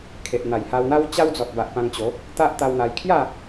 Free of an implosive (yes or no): yes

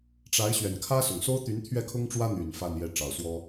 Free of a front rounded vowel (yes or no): no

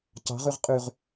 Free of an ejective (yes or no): no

